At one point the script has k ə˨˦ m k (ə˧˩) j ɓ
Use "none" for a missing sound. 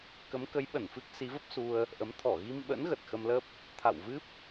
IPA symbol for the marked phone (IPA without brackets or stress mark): ə˨˦